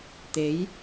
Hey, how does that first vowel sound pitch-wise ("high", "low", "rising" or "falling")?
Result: rising